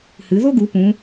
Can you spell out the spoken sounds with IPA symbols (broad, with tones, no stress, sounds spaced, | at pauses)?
h ɨ˩˧ ð o˥ ɡ u˩˧ p ũ˩˧